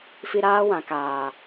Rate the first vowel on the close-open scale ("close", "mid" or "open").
close